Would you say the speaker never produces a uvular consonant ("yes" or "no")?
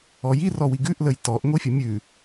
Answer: yes